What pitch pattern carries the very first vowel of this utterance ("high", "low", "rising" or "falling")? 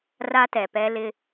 high